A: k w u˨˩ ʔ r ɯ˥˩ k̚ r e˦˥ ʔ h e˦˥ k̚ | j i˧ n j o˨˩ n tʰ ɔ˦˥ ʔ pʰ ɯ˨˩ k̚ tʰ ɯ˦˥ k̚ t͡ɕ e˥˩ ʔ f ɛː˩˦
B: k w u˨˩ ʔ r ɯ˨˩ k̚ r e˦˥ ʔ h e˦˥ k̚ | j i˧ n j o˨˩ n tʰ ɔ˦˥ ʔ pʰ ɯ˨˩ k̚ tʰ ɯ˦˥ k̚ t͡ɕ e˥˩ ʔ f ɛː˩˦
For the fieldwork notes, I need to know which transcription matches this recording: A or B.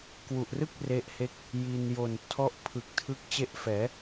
A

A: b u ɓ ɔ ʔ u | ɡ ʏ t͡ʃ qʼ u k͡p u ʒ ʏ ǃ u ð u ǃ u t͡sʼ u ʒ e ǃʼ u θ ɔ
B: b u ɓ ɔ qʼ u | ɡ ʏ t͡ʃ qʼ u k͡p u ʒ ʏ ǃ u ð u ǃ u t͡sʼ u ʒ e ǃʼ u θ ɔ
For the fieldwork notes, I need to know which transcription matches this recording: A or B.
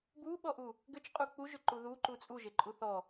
A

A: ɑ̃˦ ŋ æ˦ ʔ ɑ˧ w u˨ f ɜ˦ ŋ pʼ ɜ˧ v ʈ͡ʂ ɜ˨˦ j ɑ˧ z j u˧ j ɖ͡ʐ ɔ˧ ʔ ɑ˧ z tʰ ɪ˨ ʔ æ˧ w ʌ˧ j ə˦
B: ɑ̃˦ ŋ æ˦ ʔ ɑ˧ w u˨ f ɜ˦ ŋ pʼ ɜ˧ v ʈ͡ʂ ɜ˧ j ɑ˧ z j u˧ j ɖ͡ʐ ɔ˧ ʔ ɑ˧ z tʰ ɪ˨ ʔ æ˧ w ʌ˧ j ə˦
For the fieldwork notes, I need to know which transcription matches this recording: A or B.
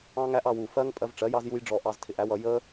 A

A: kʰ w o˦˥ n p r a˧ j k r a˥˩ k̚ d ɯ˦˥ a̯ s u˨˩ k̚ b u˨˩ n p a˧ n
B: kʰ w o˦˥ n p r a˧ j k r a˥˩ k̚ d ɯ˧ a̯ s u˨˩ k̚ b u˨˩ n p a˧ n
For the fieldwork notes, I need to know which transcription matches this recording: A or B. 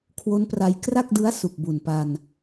A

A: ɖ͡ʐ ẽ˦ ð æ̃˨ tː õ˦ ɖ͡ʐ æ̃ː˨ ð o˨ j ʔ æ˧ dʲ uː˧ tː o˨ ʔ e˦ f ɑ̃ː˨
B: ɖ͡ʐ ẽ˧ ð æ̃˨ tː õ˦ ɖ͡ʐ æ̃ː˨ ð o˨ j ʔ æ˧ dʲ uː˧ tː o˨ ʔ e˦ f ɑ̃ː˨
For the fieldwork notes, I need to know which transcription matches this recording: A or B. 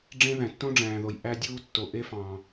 A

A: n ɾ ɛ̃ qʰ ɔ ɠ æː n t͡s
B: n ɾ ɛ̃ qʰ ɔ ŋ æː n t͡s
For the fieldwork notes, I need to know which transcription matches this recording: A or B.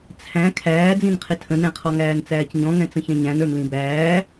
B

